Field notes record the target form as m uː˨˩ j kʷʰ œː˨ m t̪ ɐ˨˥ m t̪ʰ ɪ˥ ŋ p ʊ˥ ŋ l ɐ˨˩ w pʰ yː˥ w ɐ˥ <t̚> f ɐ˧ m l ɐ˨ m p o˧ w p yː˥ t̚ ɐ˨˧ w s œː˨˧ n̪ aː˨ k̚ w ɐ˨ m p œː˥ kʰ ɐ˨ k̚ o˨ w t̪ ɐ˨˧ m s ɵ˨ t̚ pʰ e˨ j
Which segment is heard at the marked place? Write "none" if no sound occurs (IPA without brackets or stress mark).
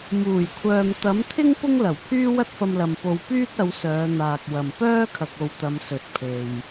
t̚